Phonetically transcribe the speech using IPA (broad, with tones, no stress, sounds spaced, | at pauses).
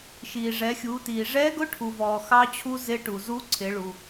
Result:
ʃ iː˩ ʐ ɛ˩˧ xʲ uː˩˧ t iː˩ ʐ ɛː˧˥ ɡ ʊ˧˥ ʈʰ u˩ v ɔː˩ x ɑ˧ t͡ɕʰ u˧ z ɪ˧˥ ʈ u˩ z u˧˥ ǀʰ ɪ˩˧ ɭ u˩